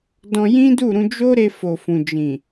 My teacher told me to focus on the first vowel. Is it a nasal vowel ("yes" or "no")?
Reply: yes